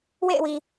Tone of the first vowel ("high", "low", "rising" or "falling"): falling